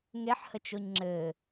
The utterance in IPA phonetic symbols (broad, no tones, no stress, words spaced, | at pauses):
ŋeħhət͡ʃoɲ ŋ͡ǁɘ